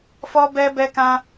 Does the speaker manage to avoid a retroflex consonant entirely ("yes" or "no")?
yes